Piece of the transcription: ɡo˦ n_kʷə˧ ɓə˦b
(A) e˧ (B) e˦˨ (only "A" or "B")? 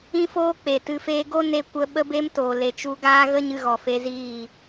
A